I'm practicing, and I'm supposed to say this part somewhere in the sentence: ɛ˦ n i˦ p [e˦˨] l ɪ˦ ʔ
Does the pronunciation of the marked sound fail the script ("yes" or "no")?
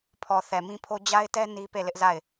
no